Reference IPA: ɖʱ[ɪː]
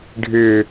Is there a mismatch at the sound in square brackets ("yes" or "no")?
no